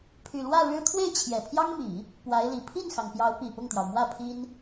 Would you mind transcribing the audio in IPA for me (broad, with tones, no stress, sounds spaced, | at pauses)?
pʰ y˨˩ l w ä˥˩ ɻ ɻ̩˥ t̪ʰ w e˥˩ ɪ̯ t͡ɕʰ j ɛ˨˩ pʰ j ɑ˥ ŋ m i˨˩˦ | p w a˧˥ ɪ̯ l i˨˩ pʰ i˥˩ n x ɑ˩ ŋ p j ɑ˧˥ ʊ̯ p i˨˩ p ʊ˥˩ ŋ t̪ j ɑ˩ ʊ̯ m w ä˥˩ pʰ i˥ n